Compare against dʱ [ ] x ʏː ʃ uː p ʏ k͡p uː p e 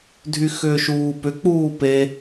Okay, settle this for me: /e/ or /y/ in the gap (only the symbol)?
y